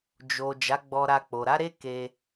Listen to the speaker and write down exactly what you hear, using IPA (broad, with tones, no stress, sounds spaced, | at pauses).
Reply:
d͡ʒ o˨ d͡ʒ a˨˦ ɡ͡b ɔ˧ ɾ a˧ k͡p o˨ ɾ a˨˦ ɾ e˦ k e˧